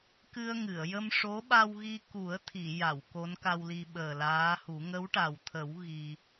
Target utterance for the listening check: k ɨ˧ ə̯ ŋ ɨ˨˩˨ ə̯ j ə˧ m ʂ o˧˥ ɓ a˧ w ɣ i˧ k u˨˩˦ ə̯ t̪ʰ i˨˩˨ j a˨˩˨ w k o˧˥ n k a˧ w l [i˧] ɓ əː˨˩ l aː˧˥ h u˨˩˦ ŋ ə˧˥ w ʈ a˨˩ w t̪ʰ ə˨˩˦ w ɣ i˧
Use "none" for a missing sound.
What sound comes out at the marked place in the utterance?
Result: i˧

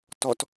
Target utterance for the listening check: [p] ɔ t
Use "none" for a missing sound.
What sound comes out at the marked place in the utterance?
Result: t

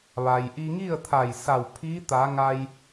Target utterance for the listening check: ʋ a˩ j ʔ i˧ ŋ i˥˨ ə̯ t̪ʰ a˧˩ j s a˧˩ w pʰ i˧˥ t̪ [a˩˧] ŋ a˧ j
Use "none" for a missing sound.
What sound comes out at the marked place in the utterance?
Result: a˩˧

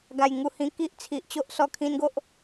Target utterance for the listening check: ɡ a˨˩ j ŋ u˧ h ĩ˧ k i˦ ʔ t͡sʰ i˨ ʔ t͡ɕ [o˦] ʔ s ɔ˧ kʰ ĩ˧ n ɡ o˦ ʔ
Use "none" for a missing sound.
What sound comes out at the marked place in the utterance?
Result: o˦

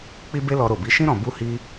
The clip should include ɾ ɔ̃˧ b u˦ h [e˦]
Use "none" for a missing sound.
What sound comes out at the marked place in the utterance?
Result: i˦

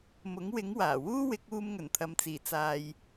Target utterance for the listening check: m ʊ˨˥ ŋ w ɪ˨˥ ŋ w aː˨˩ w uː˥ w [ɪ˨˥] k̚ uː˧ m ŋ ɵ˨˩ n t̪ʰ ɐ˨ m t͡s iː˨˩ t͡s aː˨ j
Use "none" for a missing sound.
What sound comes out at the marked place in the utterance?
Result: ɪ˨˥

